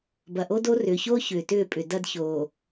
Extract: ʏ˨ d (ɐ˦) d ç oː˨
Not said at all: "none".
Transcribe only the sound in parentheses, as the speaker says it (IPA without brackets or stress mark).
ɐ˦